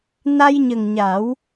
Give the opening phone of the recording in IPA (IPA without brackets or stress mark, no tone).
n